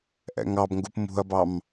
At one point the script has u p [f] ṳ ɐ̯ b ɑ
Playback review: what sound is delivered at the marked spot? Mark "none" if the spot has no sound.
m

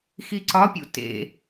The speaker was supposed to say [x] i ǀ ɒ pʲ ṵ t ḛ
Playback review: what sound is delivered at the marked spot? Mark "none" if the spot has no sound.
x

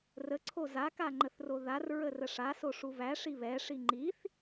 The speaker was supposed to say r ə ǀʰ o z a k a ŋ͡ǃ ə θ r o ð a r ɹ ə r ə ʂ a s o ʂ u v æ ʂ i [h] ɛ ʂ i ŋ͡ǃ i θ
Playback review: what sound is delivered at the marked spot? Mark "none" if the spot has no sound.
β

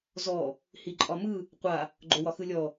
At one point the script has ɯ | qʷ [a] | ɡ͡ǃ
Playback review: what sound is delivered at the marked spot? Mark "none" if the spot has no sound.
a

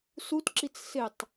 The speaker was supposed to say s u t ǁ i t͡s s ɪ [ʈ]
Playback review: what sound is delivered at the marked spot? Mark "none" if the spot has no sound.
tˤ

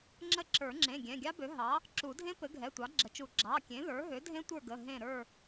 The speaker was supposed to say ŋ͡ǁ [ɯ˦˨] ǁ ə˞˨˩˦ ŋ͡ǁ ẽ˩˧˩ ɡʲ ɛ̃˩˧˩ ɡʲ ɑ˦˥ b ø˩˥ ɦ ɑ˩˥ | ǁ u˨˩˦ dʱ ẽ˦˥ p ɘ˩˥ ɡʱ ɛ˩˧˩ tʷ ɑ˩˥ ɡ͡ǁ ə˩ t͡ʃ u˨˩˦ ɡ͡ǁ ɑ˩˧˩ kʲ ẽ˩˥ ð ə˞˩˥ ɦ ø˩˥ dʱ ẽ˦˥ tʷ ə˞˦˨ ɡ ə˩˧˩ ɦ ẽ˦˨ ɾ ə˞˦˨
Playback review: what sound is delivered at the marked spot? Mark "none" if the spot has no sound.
ə˦˨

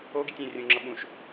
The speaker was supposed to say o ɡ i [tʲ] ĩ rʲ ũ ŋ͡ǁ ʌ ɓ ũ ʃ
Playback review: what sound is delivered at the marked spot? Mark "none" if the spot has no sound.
tʲ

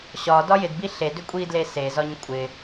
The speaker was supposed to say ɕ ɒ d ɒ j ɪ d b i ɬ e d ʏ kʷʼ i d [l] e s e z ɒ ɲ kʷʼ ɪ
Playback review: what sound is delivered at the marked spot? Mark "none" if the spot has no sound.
l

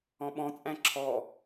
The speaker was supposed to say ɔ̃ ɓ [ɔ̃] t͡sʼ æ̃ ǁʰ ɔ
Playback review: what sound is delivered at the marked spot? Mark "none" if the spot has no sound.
ɔ̃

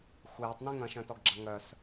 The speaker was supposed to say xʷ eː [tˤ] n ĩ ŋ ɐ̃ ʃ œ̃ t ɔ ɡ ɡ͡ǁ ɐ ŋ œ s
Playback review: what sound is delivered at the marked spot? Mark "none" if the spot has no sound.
tˤ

